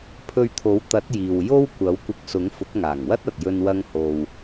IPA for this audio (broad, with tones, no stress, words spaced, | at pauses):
pʰɵ˧ɥt̪ʰo˨˥wt̪ɐ˨˥t̚ jiː˨wjo˥w kʷɐ˨˥wkʷɪ˧k̚sʊ˨˥ŋ fʊ˨˥k̚ŋaː˨˩ŋwɐ˥t̚ɐ˨t̚ jɵ˧nwɐ˧ŋho˨w